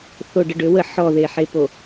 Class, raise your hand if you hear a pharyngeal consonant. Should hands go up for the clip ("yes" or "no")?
yes